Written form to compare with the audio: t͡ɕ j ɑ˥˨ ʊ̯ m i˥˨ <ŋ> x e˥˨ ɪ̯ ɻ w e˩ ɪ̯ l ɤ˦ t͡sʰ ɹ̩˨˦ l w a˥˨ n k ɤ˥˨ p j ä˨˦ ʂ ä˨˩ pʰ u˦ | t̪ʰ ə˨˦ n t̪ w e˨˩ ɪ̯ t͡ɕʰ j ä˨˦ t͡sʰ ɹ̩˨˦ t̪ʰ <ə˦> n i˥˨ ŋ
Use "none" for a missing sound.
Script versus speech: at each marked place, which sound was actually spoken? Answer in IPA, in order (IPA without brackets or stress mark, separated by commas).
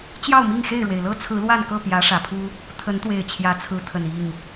ŋ, ə˨˩